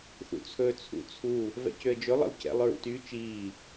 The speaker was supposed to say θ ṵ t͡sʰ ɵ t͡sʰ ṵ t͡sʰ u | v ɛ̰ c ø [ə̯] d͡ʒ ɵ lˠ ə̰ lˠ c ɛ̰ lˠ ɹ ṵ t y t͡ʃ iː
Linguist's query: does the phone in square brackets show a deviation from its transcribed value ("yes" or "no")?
no